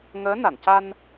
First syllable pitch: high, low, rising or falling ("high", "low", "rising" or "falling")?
rising